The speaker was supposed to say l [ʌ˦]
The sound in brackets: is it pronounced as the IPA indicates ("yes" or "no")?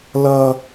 yes